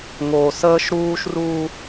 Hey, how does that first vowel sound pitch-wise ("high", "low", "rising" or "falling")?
low